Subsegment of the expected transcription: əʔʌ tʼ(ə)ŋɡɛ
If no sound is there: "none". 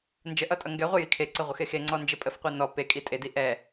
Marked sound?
ʌ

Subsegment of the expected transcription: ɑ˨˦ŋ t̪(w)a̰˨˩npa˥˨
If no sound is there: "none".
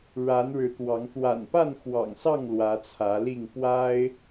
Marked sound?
w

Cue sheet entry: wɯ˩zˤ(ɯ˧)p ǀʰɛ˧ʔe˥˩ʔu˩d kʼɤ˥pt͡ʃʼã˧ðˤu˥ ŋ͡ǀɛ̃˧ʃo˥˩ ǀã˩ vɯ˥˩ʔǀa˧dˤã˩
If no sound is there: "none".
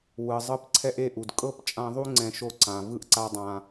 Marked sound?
ɯ˧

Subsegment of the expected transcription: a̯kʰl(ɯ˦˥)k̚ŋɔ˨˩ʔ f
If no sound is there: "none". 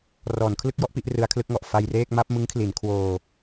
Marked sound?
ɯ˦˥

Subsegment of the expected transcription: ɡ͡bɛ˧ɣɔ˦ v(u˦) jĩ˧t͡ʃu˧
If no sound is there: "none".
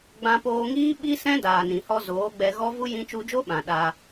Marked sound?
u˦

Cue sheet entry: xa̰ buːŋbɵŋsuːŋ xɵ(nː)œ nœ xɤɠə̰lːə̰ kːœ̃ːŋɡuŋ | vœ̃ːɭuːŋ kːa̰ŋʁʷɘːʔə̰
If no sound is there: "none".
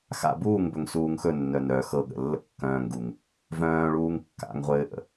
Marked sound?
nː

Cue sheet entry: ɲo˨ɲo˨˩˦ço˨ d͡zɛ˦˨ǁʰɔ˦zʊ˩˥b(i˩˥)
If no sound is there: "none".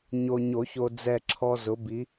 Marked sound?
i˩˥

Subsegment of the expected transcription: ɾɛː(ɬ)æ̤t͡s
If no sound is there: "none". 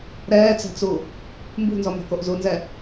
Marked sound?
t͡s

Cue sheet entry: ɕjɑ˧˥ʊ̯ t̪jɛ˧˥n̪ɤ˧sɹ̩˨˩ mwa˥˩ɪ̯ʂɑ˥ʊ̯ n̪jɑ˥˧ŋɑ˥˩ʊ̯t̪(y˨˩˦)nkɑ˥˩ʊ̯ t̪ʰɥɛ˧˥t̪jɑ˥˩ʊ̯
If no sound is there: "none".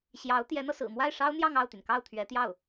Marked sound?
y˩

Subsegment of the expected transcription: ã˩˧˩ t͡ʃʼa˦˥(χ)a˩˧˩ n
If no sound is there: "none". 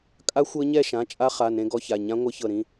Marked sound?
χ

